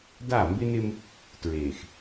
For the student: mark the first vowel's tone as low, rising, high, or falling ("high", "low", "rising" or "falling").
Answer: falling